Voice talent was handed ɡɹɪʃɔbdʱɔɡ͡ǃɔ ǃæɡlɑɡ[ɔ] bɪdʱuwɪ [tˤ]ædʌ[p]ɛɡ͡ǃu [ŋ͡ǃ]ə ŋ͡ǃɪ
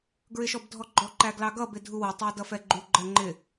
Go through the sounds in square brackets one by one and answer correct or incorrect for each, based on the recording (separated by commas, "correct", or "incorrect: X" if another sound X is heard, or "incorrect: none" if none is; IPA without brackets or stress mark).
incorrect: ʌ, correct, incorrect: f, incorrect: ɡ͡ǃ